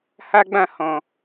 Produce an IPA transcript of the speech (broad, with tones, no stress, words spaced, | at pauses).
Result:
ha˦ɡ͡bã˦˨ hɔ̃˨